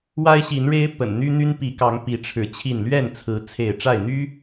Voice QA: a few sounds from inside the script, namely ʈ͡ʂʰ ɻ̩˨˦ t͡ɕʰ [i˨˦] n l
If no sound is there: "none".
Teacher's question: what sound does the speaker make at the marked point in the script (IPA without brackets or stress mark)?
i˥˨